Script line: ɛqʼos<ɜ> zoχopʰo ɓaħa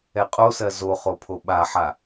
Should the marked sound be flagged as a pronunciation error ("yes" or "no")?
no